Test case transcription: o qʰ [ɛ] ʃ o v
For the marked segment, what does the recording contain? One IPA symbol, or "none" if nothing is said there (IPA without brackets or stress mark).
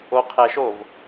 ɛ